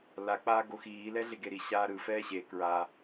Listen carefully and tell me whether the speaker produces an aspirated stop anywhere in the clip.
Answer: no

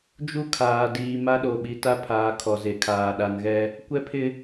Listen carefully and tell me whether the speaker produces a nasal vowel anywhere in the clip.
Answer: no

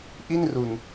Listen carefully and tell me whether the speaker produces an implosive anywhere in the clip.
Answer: no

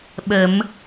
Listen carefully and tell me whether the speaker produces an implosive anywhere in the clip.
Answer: yes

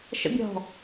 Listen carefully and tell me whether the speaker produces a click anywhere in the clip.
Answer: no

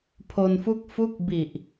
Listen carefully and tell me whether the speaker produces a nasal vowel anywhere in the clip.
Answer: no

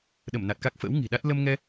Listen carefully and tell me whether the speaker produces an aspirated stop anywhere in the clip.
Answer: no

